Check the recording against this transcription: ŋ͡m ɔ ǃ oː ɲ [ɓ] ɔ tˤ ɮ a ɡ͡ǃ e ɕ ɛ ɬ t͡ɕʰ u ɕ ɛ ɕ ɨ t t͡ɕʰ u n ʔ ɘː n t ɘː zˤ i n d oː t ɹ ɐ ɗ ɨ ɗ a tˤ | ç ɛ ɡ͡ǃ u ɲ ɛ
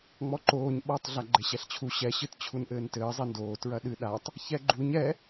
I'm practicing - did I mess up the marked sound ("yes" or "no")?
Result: no